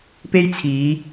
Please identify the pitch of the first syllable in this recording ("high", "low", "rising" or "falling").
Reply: high